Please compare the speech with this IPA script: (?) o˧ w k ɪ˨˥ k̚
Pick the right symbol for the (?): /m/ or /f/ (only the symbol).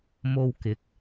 m